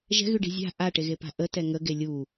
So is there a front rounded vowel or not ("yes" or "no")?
yes